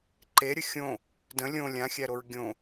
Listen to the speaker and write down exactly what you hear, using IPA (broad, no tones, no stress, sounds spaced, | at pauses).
ǃ e ɾʲ ə xʲ õ | d ə̃ lʲ õ lʲ ã xʲ æ ɾ o ɹ ɡʲ õ